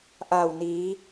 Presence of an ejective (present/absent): absent